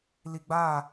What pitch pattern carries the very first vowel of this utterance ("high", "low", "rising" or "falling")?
low